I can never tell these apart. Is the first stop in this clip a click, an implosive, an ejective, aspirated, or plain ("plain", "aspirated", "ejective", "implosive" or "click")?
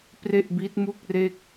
plain